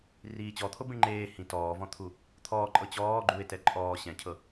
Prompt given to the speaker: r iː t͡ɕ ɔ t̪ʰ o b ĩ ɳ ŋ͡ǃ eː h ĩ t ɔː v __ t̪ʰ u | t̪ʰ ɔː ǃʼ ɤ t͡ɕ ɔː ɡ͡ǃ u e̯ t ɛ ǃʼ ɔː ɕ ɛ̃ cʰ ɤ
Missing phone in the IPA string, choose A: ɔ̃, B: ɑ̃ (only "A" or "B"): A